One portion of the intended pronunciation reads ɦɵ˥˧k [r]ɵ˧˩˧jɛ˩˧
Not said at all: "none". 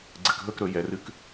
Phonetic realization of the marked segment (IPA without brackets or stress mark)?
ɾ